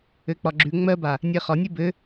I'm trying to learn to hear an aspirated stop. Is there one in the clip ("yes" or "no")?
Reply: no